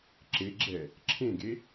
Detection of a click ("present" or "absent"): present